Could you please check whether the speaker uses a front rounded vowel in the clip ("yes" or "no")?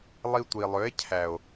yes